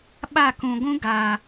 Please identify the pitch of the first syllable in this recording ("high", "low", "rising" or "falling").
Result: falling